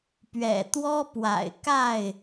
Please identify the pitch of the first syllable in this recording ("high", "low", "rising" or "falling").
low